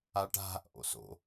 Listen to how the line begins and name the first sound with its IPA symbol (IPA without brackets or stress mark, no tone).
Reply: a